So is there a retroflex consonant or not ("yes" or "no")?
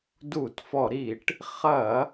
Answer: yes